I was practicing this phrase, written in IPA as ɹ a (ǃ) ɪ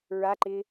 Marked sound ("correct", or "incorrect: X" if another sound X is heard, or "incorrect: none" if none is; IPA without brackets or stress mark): correct